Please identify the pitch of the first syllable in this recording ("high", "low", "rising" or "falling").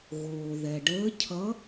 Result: low